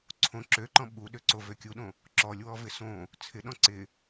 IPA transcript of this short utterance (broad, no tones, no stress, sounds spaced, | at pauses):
ǀʰ õ ǁ ø ǃ ɔ̃ ɓ u ɗ ø ǀ o v ø kʲ u ɗ õ | ǁ ɔ lʲ w ɔ v ɪ s õ | t͡sʰ ɪ ɗ ɔ̃ ǀ ɪ